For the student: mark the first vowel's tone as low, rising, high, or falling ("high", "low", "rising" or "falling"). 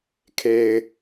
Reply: low